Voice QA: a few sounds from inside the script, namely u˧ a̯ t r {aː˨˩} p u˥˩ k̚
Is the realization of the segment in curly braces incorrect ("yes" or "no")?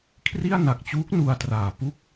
no